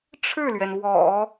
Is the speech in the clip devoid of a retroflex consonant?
no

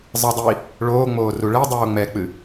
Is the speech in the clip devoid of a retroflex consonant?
no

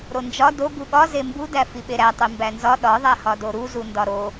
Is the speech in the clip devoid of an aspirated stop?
yes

